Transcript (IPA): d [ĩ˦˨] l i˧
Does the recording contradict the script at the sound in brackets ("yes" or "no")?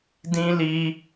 yes